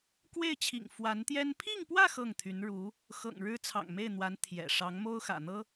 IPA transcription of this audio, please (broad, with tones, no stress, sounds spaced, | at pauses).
k w e˥˩ ɪ̯ t͡ɕʰ ḭ˨˩ ŋ f w a˧˥ n t̪ j ɛ˥ n pʰ i˥˧ ŋ p w ä˥˧ x ɤ˥˩ ŋ t̪ʰ y˧˥ n ɻ u˧˥ | x ɤ̰˨˩ ŋ ɻ ɻ̩˥ t͡sʰ ɑ̰˨˩ ŋ m e˥˩ ɪ̯ n̪ w a˧˥ n t̪ʰ j ɛ̰˨˩ ʂ ɑ˧˥ ŋ m o˥ ʊ̯ x ä̰˨˩ n̪ ɤ˥